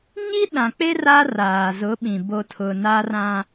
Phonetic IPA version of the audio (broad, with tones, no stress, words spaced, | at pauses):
ɲi˦ɗã˨k͡pe˦ ra˦ raː˨zʊ˨˦ɓĩ˨ bo˨tʰʊ˨ na˦rã˦